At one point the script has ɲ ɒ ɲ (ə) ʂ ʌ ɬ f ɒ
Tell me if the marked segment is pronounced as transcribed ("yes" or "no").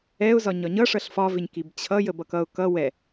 no